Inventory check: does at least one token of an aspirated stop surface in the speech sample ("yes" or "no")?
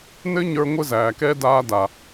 no